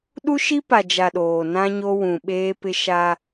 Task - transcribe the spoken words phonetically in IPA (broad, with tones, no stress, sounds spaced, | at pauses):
ɗ u˦ ʃ i˦ p a˨ d͡ʒ a˨ ɗ oː˨ n ã˦ ɲ o˦ w ũ˨ ɓ eː˦ p ɪ˦ ʃ a˦